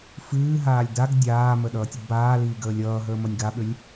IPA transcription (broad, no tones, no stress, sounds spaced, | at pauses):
f ɨː ɦ aː lʲ d a ɡ dʲ aː m ə ɗ ʌː tʲ ə ɡ b aː l iː ɡ əː lʲ ʌː ɦ əː m ʌ nʲ ɡ a ɓ ʏ lʲ